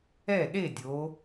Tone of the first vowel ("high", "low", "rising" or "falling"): falling